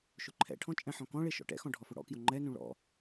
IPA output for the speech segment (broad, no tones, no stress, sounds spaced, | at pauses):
ʃ ʊ ǃʰ ɛ̰ ʈʰ ɔ̃ t͡ʃʼ ɛ̃ ħ ɔ̃ k ɔ̃ ɭ e ʃ ɔ̰ ʈ ɛ̰ x ɔ̃ ɖʱ ɔ f ʊ ɽ ɔ̰ k j ʊ ŋ͡ǃ ɛ n ũ ɭ ɔ̰